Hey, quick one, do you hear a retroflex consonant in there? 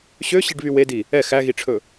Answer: yes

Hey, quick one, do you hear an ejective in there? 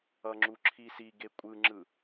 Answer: yes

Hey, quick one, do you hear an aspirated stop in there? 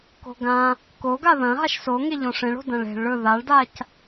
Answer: no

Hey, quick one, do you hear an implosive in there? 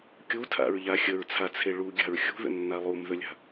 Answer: no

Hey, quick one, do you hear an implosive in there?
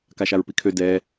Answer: no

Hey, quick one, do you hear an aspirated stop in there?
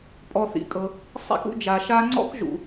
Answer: no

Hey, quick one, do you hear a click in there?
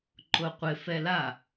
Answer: yes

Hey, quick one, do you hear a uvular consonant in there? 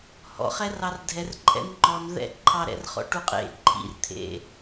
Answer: yes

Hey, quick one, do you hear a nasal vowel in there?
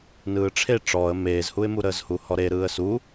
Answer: no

